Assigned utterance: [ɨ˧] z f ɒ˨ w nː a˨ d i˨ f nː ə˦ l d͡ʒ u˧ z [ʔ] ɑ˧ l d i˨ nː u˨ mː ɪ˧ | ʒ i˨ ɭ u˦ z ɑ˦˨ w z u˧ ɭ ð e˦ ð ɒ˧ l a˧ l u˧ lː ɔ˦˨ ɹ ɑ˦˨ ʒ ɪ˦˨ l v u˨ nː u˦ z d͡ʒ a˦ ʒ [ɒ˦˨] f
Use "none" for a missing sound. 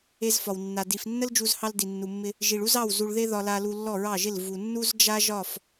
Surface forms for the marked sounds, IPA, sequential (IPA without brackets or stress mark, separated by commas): e˧, h, ɒ˦˨